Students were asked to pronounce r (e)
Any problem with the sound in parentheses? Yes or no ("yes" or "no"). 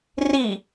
yes